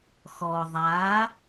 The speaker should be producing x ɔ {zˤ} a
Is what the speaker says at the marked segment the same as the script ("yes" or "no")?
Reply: no